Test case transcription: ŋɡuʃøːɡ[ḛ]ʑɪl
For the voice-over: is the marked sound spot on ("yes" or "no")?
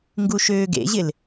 yes